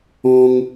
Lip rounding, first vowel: rounded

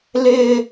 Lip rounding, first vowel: unrounded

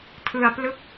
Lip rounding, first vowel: unrounded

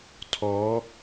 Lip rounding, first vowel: rounded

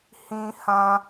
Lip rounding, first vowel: unrounded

